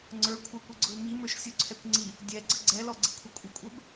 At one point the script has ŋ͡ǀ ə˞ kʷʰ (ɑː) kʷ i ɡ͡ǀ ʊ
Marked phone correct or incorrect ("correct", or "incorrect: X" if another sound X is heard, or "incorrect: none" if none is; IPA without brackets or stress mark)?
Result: incorrect: ɑ